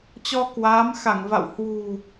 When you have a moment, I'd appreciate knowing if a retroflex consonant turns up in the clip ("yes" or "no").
no